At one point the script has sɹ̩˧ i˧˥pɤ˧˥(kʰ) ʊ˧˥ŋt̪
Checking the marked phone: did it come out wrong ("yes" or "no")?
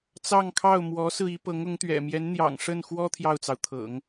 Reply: yes